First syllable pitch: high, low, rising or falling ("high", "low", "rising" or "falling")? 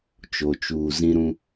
low